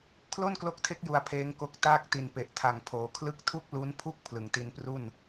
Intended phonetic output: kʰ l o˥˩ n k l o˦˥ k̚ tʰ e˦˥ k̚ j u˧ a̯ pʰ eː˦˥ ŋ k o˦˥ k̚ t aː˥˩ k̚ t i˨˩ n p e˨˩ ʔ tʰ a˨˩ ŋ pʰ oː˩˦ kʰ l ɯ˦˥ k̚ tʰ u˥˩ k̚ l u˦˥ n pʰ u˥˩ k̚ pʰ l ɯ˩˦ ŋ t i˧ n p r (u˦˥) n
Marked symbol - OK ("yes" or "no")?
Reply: no